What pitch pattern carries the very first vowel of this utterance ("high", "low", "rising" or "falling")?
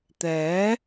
rising